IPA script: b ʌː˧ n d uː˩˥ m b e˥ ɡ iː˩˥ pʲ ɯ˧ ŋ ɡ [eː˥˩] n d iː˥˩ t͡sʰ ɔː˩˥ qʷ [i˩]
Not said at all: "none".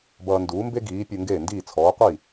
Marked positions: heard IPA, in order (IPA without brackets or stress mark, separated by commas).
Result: eː˥˩, i˥˩